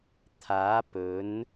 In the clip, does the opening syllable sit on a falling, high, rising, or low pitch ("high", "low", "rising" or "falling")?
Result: rising